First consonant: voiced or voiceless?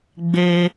voiced